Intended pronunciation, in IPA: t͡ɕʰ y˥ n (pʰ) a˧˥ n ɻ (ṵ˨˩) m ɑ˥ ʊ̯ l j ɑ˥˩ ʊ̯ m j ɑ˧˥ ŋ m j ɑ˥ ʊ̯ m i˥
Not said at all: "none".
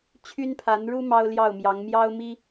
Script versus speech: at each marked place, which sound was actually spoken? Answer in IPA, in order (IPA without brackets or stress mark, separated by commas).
pʰ, u˥